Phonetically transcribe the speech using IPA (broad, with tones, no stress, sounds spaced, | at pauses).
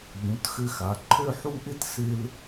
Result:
ʎ ũ˩˧ t x ɘ˧ x a˩˧ ǃʰ ø˥˧ ħ u˥˧ ʔ ɪ˥ t s ɪ˧ l